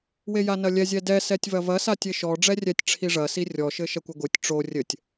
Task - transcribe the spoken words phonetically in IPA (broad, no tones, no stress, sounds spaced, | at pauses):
w e j a n ɐ lʲ ɛ zʲ ɛ d ɛ s ɛ tʲ v ɐ v ɐ s a tʲ e ʃ ɔ ɖ͡ʐ ɛ rʲ ɛ tʲ ʈ͡ʂʰ i ʐ ɐ s i rʲ ɔ ʃ ɘ ʃ ɐ kʷ ɘ ɡʷ ɨ tʲ ʈ͡ʂ o rʲ ɘ tʲ